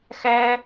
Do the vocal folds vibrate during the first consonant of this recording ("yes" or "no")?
no